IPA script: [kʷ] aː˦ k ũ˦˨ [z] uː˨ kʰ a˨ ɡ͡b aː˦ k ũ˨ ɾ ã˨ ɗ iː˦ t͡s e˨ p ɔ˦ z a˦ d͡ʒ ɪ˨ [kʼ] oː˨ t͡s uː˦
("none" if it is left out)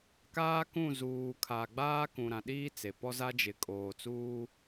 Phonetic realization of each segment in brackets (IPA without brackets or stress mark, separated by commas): k, z, kʼ